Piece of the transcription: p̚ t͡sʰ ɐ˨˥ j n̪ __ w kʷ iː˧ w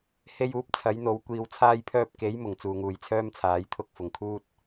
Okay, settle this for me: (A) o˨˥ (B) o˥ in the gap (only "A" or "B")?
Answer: A